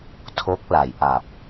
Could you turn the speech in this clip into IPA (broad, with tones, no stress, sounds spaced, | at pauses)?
tʰ o˦˥ k̚ l a˩˦ j ʔ a˨˩ p̚